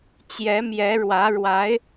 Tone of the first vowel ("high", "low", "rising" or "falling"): rising